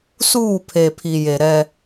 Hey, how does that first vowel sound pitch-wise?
falling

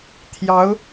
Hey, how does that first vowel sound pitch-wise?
rising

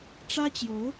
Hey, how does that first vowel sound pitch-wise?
high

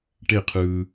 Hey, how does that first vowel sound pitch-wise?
falling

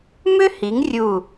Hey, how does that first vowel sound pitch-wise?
high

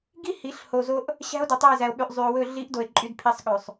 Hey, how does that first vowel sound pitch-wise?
high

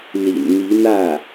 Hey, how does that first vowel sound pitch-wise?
low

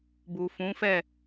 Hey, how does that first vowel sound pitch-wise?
low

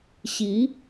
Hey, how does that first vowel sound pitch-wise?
rising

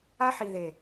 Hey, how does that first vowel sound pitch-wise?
high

